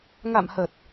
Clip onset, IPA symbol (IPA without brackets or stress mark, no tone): ŋ